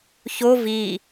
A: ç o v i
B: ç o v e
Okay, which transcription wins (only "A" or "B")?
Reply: A